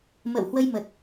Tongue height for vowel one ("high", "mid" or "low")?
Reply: mid